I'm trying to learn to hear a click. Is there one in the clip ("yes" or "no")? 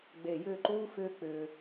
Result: yes